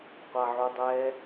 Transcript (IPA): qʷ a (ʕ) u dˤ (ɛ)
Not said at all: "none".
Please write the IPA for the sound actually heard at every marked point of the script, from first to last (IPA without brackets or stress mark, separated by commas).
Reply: ʕ, ɛ